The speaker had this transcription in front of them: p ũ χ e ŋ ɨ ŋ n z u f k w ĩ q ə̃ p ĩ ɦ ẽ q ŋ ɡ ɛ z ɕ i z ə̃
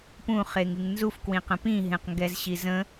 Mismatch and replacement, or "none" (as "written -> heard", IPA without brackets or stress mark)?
none